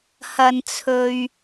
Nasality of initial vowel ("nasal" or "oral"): oral